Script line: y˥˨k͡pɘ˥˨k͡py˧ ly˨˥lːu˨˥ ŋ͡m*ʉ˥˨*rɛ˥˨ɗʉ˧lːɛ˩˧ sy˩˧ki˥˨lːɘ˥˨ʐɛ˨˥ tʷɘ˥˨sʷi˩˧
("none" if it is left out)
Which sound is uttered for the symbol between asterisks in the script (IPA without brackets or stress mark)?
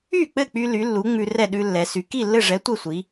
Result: ʉ˧